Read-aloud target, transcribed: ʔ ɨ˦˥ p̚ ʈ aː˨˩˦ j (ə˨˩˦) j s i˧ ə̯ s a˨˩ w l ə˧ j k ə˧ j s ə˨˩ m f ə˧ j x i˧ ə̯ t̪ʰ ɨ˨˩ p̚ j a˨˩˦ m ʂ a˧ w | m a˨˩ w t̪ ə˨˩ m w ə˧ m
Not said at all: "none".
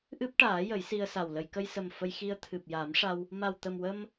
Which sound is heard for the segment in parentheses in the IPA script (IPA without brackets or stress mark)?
ə˨˩˦